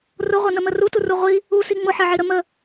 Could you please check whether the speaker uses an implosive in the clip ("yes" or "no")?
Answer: no